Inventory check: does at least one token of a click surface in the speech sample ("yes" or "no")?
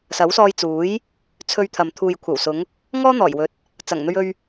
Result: no